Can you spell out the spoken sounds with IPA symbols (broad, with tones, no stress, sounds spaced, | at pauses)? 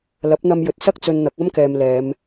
l ɐ˨˥ p̚ n̪ ɐ˧ m j ɵ˨˥ t̚ s ɐ˥ k̚ t͡s ɵ˧ n n̪ ɐ˨˥ k̚ ɐ˥ m k ɛː˨ m l ɛː˨˧ m